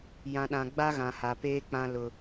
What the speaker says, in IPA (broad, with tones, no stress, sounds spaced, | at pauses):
j ã˨ ɗ ã˨ ɡ͡b a˦ ɣ ã˨ h a˨ p eː˦ k͡p ã˦ l ʊ˦